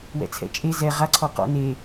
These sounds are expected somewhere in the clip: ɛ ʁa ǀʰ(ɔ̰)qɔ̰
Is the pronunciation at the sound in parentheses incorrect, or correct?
incorrect